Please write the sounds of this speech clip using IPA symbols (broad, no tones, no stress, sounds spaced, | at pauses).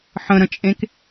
ħ ə̃ ɾ ə̃ t͡ʃʼ ẽ k